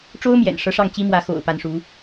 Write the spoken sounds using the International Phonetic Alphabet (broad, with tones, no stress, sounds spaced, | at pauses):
ʈ͡ʂ o˥ ʊ̯ m j ɛ̰˨˩ n ʂ ɤ˧˥ ʂ ɑ˥˩ ŋ t͡ɕ i˥ m w ä˧˥ x o̰˨˩ ʊ̯ p a˧˥ n ʂ u˧˥